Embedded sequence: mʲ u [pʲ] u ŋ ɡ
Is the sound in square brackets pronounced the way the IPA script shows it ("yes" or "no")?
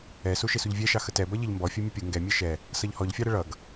yes